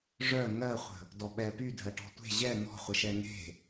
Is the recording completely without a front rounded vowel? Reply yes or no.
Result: no